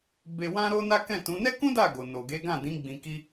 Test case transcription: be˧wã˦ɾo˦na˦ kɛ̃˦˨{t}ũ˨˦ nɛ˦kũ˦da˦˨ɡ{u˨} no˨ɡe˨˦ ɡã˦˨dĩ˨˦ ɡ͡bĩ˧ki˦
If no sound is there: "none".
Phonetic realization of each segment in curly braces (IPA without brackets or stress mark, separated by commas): t, o˨